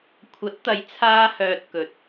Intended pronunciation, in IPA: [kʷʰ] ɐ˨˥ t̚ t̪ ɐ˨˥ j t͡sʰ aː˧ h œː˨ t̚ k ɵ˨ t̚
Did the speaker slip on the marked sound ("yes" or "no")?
no